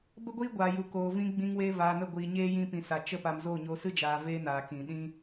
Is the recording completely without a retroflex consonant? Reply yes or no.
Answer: yes